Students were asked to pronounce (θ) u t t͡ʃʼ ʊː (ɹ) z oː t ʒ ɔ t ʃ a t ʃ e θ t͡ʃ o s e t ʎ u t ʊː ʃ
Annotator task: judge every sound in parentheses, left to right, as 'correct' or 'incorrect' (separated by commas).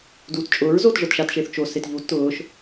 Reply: incorrect, correct